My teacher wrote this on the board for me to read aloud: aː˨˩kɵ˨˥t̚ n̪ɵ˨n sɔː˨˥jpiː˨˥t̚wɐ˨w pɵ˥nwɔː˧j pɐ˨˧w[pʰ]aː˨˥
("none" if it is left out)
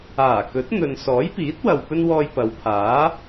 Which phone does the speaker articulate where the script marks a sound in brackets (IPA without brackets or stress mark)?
pʰ